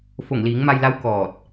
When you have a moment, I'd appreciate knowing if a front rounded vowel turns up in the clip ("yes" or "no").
no